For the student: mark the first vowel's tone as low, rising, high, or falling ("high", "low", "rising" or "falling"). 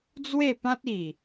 falling